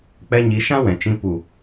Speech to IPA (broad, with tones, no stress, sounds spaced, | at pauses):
k͡p ɛ˧ ɲ i˨˦ ʃ ã˦ w ɛ̃˨ t͡ʃ ĩ˧ p u˨